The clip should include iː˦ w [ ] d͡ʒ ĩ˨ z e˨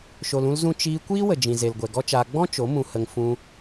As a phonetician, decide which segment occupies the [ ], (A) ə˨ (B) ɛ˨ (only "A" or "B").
A